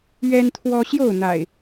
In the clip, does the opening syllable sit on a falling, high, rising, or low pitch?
high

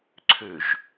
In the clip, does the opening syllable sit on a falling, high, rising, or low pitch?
low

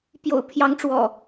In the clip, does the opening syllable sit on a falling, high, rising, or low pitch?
low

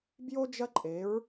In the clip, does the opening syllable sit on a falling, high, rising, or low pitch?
high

